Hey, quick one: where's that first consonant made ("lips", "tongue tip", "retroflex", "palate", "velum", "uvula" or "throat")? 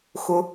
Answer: velum